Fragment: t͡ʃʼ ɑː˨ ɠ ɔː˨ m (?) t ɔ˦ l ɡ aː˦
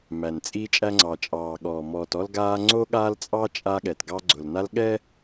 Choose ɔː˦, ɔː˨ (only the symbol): ɔː˨